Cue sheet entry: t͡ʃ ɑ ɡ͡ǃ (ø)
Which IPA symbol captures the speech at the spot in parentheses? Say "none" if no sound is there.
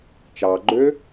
ø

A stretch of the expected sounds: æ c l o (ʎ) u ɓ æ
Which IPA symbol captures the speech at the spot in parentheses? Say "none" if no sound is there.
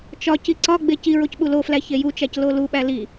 l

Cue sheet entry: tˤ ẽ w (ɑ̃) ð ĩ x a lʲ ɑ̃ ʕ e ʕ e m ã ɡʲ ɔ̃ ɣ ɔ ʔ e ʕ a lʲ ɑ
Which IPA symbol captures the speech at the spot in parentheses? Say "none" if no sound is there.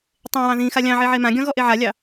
ɑ̃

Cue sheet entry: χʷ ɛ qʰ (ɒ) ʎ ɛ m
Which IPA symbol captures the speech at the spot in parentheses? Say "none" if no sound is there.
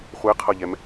ʌ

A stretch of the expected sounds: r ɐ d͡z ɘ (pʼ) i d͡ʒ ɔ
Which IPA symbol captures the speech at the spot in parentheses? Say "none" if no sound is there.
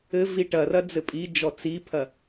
pʼ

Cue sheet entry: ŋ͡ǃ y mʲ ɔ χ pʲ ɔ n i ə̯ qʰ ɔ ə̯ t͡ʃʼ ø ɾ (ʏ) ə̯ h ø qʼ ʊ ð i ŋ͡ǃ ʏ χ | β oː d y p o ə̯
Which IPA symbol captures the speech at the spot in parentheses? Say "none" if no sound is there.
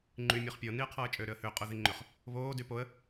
ʏ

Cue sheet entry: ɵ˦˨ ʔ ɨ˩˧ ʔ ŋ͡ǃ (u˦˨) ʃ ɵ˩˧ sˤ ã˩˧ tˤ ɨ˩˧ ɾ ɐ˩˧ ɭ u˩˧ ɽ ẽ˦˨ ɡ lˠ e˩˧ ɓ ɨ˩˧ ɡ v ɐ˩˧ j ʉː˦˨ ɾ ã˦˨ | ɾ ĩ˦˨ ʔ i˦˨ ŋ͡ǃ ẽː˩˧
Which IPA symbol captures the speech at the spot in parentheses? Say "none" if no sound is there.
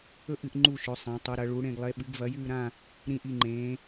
u˦˨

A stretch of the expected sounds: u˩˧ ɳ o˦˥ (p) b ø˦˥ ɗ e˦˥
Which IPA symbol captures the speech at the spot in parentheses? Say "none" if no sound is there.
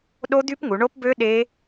p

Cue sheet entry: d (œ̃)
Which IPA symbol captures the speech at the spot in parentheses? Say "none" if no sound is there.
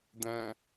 æ̃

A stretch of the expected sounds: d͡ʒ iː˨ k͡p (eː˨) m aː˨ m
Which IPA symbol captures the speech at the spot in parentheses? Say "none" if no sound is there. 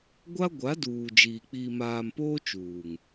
iː˨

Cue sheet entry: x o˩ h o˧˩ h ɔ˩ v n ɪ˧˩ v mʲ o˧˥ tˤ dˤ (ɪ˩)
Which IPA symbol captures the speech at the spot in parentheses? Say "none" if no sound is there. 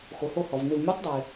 ɪː˩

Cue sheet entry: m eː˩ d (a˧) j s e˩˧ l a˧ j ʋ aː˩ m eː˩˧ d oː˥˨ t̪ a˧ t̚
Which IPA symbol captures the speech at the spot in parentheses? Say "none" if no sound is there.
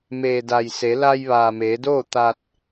a˩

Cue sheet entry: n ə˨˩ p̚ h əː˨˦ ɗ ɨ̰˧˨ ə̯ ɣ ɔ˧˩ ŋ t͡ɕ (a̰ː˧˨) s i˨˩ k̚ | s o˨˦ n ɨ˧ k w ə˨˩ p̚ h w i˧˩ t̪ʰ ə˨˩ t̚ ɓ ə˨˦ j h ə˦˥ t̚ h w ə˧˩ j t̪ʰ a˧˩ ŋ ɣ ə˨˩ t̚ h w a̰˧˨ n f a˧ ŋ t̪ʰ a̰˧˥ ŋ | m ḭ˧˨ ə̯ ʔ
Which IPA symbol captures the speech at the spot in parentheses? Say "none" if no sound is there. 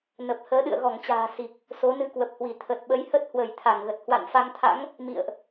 a̤ː˨˩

